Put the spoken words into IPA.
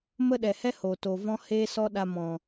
mə˦ɗɛ˨hɛ˦ ho˨to˨vɔ̃˦ heː˧sɔ˧ ɗa˧mɔ̃˨

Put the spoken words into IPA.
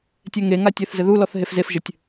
tʲɛŋeŋatʲɘθ zɘðulɔθ ɦefzefʒɘtʲ

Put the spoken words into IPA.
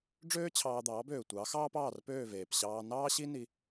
ɖ͡ʐøː˥t͡ɕʰɑː˧d̪ɑː˩˥bøː˩ tʷɑ˩˥xɑː˥p ɑː˥˩rpøː˥˩veː˩p ɕɑː˧nɑː˥ɕi˥ ni˧

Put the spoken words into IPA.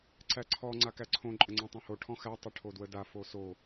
ǀæǀʰɔ ŋ͡ǀakæǀʰõ ǃʼəŋ͡ǀɔ̃tˤõho ʈʰɔ̃xæ tˤəʈʰodwəda foso

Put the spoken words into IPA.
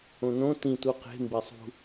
õnõ tĩ tuqe̤ mbesˤṳ

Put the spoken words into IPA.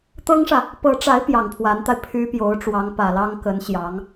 t̪ɤ˥ŋʂä˨ | pɤ˧˥ʈ͡ʂa˧˥ɪ̯ pjɑ˨˩ŋpʰwa˧˥nt̪a˧ɪ̯ pʰy˥ pjo˧˥ʊ̯ʈ͡ʂwɑ˧˥ŋpä˨˩lɑ˥ŋ kə˧˥n ɕjɑ˧˥ŋ

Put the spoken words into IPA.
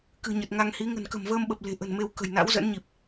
kɨ̤˨˩ɲə˨˩t̚ŋa˧ŋhi˨˦ ŋə̤˨˩nkə̤˨˩mvəː˧mɓə˨˩p̚ le̤˨˩ʔə̤˨˩nme˧wkə̤˨˩j na̰˧˥wzə̰˧˥nɲi˨˩p̚

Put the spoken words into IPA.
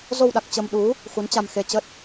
zo˧wɗa˨˩k̚ t͡ɕə˧mɗu˨˦ | xu˨˦nt͡ɕa˧m xe˧t͡ɕə˦˥t̚

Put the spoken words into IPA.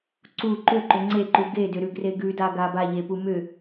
ǀu ǃʏǃʏ ŋ͡ǀeǃu ɡedʏɾʉɡre ɡʉdaɡa baʎepu mʏ

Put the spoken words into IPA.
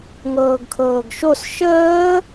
ŋɤːɡkʰɤːɡʃos ʃəː

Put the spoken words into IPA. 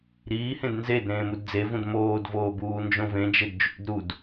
ɾiːhẽd nzed ɾẽːmudd͡zevũd moːdvoː buːnd͡ʒõvẽd͡ʒed d͡ʒṵd ɾud

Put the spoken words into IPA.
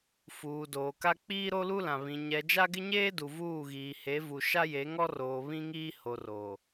fuː˨doː˨ka˦ k͡piː˦ɾo˦lu˦lã˨ βĩ˨ ɲɛ˨ d͡ʒa˦ɡɪ˦ɲeː˦du˨ vuː˦˨ɣiː˨he˨˦ vu˨ ʃa˦je˨˦ŋɔ˦roː˨ βĩ˦ŋiː˦ ho˨roː˨

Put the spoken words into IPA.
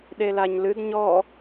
ɗelaɲlɨd ɲɔ

